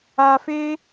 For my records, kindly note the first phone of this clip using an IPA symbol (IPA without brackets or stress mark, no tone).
aː